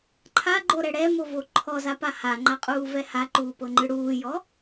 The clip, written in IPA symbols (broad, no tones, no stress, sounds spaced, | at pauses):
ǃʰ a ɡ͡ǃ o ɾ ɛ ɽ ɛ m o v o ǃʰ ɔ z a p a h a ŋ͡ǃ a qʼ uː v ɛ h a ǃ uː p ɤ ŋ͡ǃ ɯ ɽ uː j ɔ